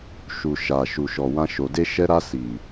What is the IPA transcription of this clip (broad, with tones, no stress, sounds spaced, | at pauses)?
ʃ u˨ ʃ a˨ ʃ u˨ ʃ ɔ˨ w ã˧ ʃ o˨ d e˧ ʃ ɛ˧ ɾ a˧ s i˨